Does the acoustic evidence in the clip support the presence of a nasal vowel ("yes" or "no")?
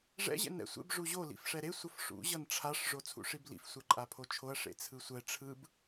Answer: no